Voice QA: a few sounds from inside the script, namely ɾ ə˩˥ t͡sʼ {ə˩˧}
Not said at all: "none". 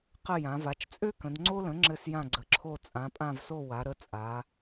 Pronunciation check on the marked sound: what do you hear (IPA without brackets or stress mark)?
a˩˧